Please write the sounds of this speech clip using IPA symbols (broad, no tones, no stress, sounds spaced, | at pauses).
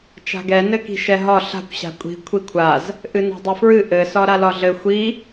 t͡ʃ a̤ ɡ ɛ n ɘ k i̤ ʃ ɛ ɦ ɒ ɬ a̤ kʷ ɕ a̤ kʷʼ i̤ kʷʰ i kʷʰ a z | ʔ ɨ n a̤ dˤ ɘ f ɹ ɨ ʔ ɘ s ɒ ɾ a l ɒ ɮ ɘ xʷ i